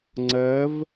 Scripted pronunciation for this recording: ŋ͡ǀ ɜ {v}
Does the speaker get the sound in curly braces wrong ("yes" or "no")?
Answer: no